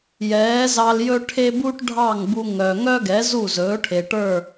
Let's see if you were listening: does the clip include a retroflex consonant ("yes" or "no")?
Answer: yes